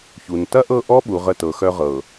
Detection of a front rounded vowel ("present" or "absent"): present